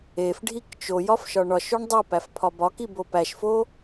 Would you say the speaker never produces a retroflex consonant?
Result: no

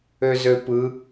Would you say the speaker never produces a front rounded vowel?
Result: no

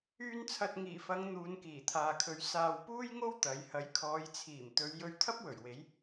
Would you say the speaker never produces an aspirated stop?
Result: no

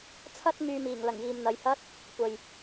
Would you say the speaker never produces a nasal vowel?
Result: yes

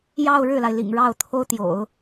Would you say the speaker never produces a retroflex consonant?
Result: no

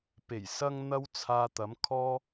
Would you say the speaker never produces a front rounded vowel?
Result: yes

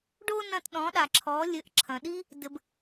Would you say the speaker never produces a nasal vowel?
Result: no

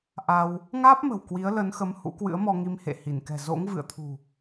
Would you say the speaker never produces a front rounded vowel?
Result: yes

